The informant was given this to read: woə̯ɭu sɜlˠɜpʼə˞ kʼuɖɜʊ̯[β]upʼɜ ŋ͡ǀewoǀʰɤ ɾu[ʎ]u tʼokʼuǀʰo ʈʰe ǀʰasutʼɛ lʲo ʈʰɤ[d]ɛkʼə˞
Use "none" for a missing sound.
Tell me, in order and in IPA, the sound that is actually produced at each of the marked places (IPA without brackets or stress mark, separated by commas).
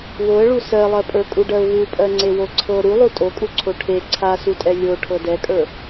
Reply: β, lˠ, d